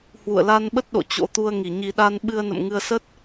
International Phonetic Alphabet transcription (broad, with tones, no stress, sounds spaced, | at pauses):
h w ṵ˧˨ ə̯ l a˧ n ɓ ə˦˥ t̚ ɗ o̰˧˨ t͡ɕ o̰˧˥ t̪ u˧ ə̯ ŋ i˧˩ ɲ i˧ ɗ a˧ n ɓ ɨ˧ ə̯ n ə̰˧˨ m ŋ ɨ˧ ə̯ s ə˦˥ t̚